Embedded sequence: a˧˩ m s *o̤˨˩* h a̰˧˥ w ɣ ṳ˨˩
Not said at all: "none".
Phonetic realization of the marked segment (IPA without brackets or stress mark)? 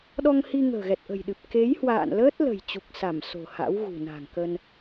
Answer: o̤˨˩